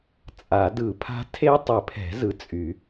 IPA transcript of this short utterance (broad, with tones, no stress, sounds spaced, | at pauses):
t͡sʼ a˨˩˦ d ɯ˨˩˦ pʰ a̤˦˥ tʰ e˦˥ tˤ ɘ˨˩˦ pʰ ɛ̤˨˩˦ z ɯ˨ t͡sʼ y˨˩˦